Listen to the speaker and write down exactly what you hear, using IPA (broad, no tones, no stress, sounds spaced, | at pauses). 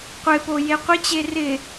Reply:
qʷ ɪ p o j e qʷ ɪ t͡ɕ e r ɪ